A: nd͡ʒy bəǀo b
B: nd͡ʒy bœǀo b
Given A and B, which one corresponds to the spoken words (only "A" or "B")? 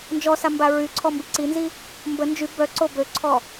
B